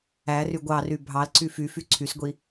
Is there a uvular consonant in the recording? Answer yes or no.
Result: no